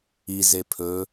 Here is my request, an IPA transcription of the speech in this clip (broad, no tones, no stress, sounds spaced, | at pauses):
i z e pʰ ɵ